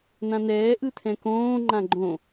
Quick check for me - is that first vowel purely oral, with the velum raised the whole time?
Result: no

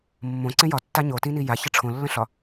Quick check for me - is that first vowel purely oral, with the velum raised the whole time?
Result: no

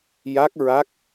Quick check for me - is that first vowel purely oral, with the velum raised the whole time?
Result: yes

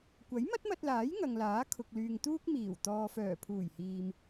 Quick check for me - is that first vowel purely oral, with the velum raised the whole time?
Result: yes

